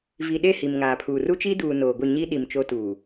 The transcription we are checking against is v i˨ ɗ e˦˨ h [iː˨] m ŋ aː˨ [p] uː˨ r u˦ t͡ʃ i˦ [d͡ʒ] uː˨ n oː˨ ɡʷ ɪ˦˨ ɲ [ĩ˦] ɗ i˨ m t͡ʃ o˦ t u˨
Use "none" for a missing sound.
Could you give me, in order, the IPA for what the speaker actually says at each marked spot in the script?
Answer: i˨, pʰ, d, i˦

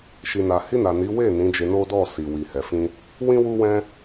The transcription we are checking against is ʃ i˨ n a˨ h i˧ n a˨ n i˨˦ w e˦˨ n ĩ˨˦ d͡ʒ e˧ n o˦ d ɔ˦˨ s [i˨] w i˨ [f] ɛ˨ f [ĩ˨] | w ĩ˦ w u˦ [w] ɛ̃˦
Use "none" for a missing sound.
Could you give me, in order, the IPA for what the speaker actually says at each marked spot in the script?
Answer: i˨, h, ĩ˧, w

